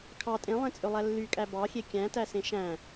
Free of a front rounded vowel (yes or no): no